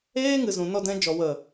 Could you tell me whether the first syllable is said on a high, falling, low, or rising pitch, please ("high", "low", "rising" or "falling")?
high